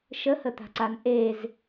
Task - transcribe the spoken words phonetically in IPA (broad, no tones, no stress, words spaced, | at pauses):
ʃəhət̪a̤ǀan ʔez